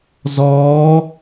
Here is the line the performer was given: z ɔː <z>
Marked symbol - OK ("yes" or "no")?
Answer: no